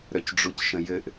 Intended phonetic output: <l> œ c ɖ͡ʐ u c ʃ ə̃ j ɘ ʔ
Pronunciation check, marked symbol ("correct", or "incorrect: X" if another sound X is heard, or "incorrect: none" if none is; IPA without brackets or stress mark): incorrect: ɾ